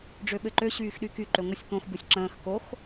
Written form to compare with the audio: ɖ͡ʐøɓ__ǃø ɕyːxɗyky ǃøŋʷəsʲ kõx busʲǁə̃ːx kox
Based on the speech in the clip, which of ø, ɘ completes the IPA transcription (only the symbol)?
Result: ɘ